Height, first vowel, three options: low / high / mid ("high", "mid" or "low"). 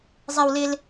mid